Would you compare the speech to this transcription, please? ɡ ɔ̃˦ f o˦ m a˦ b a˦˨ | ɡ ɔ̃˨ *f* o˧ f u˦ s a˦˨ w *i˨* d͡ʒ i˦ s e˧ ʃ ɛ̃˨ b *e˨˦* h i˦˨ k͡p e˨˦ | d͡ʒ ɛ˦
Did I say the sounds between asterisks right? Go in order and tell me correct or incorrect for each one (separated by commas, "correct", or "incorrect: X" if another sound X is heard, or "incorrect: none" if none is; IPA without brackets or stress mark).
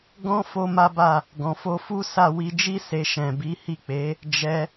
correct, incorrect: i˧, incorrect: i˨˦